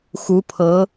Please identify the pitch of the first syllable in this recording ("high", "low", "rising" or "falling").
rising